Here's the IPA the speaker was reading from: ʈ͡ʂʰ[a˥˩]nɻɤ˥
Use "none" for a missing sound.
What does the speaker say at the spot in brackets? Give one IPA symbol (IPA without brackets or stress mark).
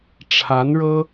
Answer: a˧˥